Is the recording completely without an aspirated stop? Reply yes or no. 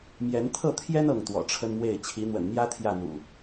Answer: no